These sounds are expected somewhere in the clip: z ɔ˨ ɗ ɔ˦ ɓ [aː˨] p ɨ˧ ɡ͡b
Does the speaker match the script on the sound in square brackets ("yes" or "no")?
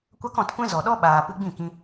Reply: yes